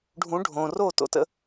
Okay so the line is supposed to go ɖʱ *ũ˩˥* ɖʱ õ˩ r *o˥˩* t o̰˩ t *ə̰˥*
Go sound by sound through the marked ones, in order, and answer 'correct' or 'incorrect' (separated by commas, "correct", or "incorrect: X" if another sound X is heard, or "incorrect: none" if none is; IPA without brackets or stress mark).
correct, correct, incorrect: ə̰˧